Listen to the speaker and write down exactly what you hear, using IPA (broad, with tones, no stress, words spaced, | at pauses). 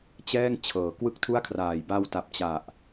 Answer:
t͡ɕɛː˥˩ŋ t͡ɕʰɤː˩˦kwɯ˥˩k̚tʰu˥˩a̯kʰraː˨˩j ba˧wta˨˩p̚t͡ɕa˨˩ʔ